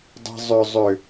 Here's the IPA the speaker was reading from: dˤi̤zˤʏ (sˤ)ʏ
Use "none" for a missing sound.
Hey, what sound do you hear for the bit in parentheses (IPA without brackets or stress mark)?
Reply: zˤ